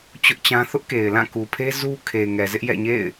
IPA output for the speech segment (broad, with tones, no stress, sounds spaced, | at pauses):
t͡ɕ ʊ˦ ʔ t͡ɕ ã˦ θ ʊ˦ ʔ k e˨ ɪ̯ l ã˦˨ k u˨ pʰ e˦ z u˦ kʰ e˨ ŋ ɛ˨ z ɪ˦ ʔ j ɛ̰˦˨ ɲ ḛ˦˨ ɪ̯